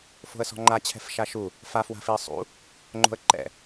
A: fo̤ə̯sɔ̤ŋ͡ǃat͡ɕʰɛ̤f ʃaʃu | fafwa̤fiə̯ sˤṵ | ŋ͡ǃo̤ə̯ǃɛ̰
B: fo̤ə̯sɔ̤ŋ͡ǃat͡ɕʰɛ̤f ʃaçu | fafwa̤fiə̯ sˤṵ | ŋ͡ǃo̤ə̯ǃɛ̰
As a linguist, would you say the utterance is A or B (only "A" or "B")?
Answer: A